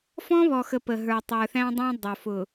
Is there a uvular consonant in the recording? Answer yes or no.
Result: no